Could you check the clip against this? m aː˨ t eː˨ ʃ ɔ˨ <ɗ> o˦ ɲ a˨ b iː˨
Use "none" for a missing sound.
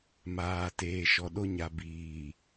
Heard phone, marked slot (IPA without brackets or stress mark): ɗ